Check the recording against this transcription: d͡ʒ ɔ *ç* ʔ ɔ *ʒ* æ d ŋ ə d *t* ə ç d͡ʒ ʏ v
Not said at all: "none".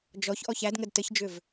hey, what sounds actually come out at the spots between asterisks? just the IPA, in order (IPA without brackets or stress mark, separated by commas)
ç, ç, t